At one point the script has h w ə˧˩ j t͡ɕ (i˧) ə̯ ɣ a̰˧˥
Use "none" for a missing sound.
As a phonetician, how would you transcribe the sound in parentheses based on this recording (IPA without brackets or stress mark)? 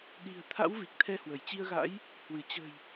i˧